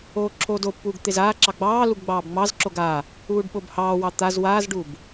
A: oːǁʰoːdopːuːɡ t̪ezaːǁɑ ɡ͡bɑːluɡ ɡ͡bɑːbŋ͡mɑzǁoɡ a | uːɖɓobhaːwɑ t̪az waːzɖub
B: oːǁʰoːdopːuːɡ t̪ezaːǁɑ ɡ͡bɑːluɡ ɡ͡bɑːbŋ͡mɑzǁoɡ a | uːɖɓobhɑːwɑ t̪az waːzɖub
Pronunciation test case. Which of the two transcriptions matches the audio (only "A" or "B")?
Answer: B